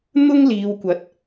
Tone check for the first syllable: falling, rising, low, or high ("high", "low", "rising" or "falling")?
high